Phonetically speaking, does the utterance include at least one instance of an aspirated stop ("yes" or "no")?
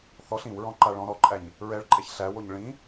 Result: no